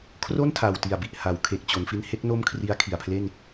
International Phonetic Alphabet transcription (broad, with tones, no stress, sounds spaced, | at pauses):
kʰ r o˥˩ n tʰ a˨˩ w t i˨˩ a̯ b i˨˩ ʔ h a˩˦ w kʰ e˨˩ k̚ t͡ɕ o˩˦ n f i˦˥ n h e˦˥ k̚ n o˥˩ m kʰ r i˦˥ a̯ kʰ i˨˩ a̯ pʰ l e˥˩ n